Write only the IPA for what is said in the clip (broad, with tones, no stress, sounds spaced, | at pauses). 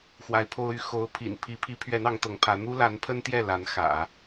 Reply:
x w a˧˥ ɪ̯ pʰ o˥ ʊ̯ y˥ x o˧˥ ʊ̯ pʰ ḭ˨˩ n pʰ i˧˥ pʰ i˧˥ pʰ ɥ ɛ˧˥ n ɑ˧˥ ŋ t̪ ɤ˧˥ ŋ pʰ ä˧˥ n̪ u˥ l a˧˥ n pʰ ə˥ n t̪ j ɛ˥˩ l a˧˥ n x ä̰˨˩˦